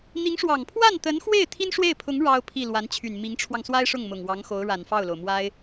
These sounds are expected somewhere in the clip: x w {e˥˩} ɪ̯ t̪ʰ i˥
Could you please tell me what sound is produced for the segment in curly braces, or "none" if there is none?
e˥˩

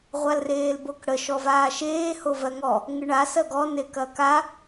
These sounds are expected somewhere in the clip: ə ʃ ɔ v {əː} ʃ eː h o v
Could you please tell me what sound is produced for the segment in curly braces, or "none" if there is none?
aː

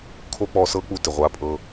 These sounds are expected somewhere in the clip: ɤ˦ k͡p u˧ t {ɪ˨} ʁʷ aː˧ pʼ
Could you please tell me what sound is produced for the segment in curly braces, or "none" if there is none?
ɪ˨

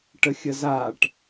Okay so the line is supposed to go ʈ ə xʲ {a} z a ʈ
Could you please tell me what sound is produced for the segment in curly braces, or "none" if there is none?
ə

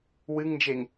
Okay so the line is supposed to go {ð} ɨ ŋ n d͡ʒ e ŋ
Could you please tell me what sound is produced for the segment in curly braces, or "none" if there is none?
w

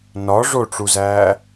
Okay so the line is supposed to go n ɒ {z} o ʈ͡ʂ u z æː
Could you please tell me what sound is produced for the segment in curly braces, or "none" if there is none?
ʐ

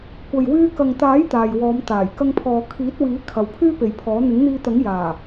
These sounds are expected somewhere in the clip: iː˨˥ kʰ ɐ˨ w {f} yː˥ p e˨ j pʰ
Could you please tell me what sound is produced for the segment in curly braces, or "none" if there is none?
pʰ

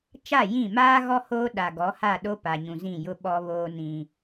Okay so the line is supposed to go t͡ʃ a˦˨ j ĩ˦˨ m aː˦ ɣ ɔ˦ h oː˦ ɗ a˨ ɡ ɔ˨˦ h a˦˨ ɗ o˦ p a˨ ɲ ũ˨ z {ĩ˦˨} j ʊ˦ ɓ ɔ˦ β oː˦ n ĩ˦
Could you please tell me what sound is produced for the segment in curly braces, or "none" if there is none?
ĩ˦˨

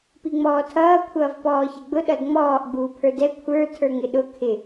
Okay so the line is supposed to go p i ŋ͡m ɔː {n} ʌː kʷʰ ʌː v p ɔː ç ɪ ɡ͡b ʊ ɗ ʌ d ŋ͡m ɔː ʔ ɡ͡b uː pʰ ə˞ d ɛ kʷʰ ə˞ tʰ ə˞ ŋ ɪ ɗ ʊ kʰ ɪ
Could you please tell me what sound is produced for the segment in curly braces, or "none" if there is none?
tʰ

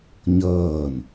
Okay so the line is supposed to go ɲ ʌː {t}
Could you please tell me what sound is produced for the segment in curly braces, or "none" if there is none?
n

